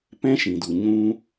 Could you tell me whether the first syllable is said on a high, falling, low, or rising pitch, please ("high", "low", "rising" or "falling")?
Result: high